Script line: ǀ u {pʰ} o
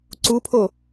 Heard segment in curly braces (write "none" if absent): pʰ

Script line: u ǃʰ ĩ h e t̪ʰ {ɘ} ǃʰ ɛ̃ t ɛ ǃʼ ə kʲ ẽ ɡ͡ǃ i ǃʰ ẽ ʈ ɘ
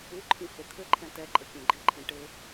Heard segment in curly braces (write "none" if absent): ɘ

